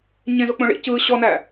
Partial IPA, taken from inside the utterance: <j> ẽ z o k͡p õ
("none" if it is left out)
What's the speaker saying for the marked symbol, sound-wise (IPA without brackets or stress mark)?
ɲ